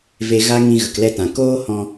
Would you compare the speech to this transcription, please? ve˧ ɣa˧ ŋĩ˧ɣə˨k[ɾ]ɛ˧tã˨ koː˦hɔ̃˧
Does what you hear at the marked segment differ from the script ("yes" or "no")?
yes